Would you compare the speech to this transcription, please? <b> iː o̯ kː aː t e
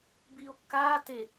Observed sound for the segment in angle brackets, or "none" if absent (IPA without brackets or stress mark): b